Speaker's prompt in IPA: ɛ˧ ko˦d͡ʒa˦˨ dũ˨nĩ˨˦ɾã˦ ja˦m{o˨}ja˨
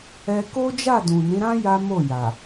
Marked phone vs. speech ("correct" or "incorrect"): incorrect